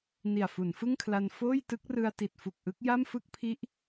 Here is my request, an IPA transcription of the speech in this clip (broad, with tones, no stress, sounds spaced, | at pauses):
n i˨˩ a̯ f u˩˦ n f ɯ˥˩ ŋ kʰ l a˧ n f oː˥˩ j t ɯ˦˥ k̚ r ɯ˧ a̯ t i˨˩ t̚ f u˨˩ k̚ ʔ ɯ˦˥ k̚ j a˥˩ m f ɯ˥˩ k̚ pʰ i˦˥ ʔ